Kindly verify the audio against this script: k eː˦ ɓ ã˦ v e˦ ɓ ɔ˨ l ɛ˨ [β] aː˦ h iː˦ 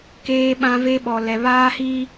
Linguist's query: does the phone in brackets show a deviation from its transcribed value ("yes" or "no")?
no